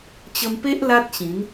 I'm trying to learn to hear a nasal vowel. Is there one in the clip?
yes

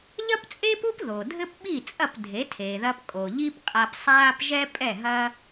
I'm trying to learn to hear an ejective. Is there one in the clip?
yes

